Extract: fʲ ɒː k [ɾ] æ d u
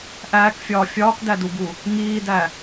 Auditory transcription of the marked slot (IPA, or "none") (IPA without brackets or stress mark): d